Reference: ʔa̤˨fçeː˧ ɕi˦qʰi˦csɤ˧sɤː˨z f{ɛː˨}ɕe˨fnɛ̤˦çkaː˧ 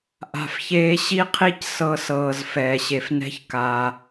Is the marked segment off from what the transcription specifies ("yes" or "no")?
no